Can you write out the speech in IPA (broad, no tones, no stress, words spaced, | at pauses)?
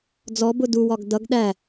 d͡zɔbʊ duwɒɡ dʌɡ ɗæ